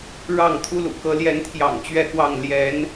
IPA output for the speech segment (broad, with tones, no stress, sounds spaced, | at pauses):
ɻ ɑ˥˨ ŋ t̪ʰ u˦ l ṵ˨˩ k ɤ˨˦ l j ɛ˨˦ n t̪ʰ j ɑ̰˨˩ ŋ t͡ɕ ɥ ɛ˥˨ k w ɑ˥˨ ŋ l j ɛ˨˦ n